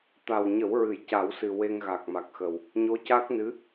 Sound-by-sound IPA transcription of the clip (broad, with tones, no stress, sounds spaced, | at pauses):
t̪ a˨˩ w ɲ ə˨˩˦ w ɹ ɨ˨˩˨ j c a˨˩˦ w s ɨ˨˩ w e˧ ŋ ɣ a˨˩ k̚ m a˨˩ k̚ x ə˨˩ w | ɲ o˧˥ c a˦˥ k̚ n ɨ˧˥